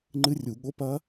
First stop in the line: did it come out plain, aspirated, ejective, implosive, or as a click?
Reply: click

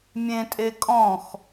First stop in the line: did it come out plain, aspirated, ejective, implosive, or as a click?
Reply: ejective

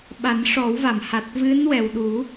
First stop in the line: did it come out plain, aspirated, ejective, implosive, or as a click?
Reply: implosive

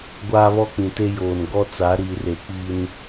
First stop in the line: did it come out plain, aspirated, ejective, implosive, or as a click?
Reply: plain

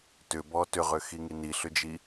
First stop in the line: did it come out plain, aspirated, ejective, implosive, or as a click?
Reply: plain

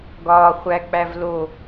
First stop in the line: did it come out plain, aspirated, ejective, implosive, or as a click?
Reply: plain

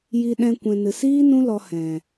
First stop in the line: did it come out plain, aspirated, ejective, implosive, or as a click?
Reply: implosive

